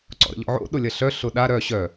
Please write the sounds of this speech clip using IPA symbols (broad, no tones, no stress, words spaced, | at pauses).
ǀɔ̰ɾə̰ʎɔ̰ʕo̰ ɗʊlʲɐɬœ ɬʊɗa ɾœ ɕœ